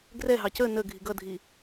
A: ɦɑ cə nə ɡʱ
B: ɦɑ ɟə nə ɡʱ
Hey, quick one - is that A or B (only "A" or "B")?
A